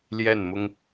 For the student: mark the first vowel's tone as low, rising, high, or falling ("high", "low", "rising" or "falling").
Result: falling